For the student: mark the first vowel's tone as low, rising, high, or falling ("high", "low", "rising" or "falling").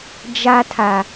high